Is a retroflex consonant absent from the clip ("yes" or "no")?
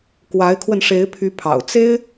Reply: no